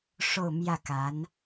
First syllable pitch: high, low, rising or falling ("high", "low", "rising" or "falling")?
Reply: falling